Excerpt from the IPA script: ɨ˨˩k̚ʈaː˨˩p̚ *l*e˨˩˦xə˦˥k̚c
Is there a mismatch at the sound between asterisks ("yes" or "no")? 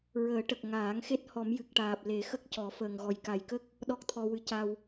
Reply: no